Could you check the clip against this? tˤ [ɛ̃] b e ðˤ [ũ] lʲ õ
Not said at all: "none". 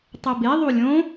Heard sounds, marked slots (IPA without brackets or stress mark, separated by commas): ɛ, u